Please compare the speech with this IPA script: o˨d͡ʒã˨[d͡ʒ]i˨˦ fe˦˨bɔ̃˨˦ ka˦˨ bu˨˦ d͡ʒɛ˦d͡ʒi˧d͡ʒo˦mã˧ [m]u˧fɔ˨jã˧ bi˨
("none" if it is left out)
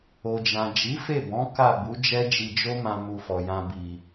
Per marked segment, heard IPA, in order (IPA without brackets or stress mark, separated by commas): d͡ʒ, m